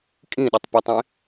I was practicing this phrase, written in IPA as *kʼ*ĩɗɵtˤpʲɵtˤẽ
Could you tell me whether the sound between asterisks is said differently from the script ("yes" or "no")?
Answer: no